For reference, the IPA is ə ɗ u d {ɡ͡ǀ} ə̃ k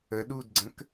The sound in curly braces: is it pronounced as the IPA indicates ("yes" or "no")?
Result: yes